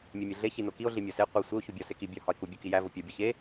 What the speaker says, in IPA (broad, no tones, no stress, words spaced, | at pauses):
mʲemʲeɮe çinokio̯ ɮimʲɒse qʷi sʷeo̯ çubʲɒ seki bʲɒ hɒe̯ku bʲukijæ vopʲɒ bʲɒçe